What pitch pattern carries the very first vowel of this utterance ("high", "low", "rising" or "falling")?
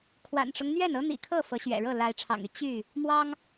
low